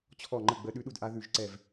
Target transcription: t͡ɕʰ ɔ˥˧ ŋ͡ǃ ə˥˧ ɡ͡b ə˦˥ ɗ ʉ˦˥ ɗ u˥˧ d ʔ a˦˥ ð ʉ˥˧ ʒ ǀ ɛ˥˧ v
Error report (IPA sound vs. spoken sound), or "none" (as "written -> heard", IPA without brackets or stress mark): none